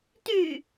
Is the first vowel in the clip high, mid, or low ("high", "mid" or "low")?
high